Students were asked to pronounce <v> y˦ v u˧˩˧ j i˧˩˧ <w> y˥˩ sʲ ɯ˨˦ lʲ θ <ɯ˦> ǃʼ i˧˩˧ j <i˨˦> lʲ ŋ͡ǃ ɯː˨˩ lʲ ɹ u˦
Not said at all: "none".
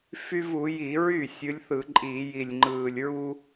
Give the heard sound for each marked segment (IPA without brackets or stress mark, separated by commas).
f, ɹ, ɯ˧˩˧, i˨˩